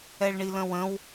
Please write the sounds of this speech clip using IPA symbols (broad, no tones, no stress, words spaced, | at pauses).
ɛɭɳilə̃wə̃w